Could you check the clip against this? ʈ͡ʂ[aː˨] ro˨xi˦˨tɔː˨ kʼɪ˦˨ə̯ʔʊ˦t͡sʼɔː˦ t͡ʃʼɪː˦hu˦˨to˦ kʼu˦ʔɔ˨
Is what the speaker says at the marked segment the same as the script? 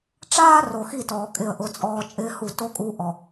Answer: no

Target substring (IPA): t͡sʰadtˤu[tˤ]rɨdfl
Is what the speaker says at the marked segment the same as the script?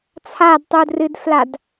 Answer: no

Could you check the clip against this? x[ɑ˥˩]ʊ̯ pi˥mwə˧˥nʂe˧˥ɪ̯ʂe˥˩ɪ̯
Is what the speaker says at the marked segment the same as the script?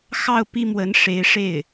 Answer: yes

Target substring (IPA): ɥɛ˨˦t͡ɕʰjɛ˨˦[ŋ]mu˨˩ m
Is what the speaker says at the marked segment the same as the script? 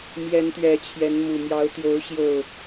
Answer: no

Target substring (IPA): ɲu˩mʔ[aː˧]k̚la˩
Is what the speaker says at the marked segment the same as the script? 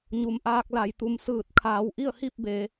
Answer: yes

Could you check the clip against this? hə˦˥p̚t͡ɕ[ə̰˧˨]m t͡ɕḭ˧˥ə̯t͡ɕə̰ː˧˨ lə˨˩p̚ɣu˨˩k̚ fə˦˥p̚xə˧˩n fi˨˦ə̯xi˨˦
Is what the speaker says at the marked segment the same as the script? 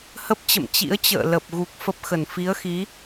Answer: yes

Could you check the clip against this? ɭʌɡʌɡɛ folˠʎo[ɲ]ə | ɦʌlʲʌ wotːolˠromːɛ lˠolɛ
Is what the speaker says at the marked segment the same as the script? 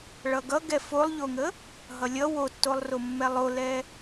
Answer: no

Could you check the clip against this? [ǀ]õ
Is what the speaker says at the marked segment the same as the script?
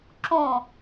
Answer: no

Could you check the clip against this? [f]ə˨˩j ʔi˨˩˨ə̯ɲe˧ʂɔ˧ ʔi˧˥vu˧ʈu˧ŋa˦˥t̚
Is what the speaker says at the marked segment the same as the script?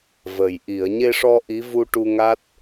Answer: no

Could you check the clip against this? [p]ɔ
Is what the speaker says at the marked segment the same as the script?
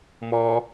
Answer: no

